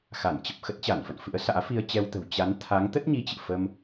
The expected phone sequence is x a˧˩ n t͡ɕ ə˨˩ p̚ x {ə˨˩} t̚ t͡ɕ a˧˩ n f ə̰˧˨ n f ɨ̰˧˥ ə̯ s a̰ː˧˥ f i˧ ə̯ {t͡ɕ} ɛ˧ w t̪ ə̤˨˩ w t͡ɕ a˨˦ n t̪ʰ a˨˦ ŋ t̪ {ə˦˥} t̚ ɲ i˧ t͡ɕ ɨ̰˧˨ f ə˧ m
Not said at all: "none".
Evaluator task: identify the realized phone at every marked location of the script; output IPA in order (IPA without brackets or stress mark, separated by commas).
ə˦˥, t͡ɕ, ə˦˥